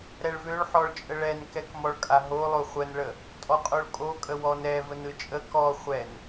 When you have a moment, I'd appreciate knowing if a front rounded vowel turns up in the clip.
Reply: yes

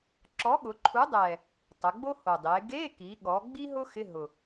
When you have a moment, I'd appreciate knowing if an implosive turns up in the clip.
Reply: yes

